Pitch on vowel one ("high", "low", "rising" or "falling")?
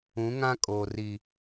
rising